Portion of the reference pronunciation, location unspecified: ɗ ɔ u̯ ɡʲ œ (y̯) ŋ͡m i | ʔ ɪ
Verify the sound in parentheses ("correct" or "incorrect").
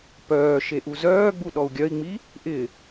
incorrect